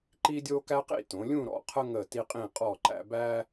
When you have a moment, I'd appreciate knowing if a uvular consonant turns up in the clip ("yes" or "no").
yes